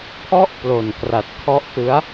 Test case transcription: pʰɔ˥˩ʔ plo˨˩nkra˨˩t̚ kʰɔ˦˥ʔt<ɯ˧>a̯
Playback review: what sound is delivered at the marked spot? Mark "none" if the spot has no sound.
ɯ˦˥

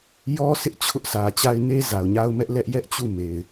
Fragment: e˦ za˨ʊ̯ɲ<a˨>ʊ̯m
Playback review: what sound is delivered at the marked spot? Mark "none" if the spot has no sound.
a˦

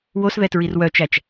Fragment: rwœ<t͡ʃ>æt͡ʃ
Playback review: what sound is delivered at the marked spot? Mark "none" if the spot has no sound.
t͡ʃ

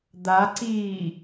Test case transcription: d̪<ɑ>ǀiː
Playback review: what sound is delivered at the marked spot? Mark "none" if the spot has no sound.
a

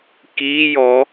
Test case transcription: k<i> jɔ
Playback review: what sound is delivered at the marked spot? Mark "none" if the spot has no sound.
i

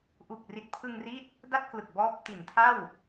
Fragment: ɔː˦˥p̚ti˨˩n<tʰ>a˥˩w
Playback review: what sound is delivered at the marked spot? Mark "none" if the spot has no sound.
tʰ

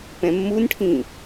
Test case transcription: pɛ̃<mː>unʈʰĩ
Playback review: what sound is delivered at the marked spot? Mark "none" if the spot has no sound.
mː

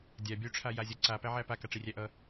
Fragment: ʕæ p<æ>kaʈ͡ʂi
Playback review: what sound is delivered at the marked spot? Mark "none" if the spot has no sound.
a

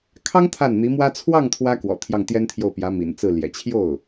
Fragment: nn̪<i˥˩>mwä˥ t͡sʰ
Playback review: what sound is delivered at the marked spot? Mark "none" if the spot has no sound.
i˧˥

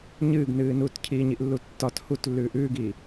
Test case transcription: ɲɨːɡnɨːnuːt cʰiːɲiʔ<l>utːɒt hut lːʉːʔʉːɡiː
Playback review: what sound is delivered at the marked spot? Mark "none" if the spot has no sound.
lː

